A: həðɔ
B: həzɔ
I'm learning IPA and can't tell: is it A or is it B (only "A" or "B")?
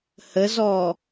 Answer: B